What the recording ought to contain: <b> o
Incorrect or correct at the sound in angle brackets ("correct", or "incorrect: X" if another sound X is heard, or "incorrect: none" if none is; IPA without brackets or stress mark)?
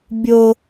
incorrect: bʲ